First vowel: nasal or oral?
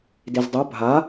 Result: oral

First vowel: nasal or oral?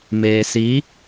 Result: oral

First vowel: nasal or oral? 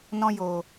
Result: nasal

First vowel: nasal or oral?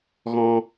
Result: nasal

